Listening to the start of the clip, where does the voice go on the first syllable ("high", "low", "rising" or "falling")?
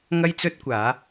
high